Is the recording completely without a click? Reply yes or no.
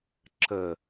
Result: no